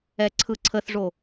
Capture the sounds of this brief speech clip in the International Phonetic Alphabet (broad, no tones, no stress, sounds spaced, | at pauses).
ɛ ǀʰ ɯ ǀʰ ə θ ʐ o